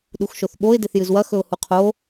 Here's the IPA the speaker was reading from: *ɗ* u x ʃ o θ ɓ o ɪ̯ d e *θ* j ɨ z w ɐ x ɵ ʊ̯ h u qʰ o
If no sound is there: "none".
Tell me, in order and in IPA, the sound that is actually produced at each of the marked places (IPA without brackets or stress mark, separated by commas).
ɗ, θ